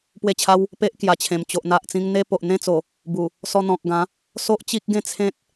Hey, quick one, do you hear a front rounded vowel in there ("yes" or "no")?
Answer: no